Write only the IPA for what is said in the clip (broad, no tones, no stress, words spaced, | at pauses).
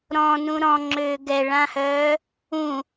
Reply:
ɾɔ̃nũ ɾɔ̃ŋ͡ǁøː ɡɛɭãhœː | ũ